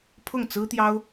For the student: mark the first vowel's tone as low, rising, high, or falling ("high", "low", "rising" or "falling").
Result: falling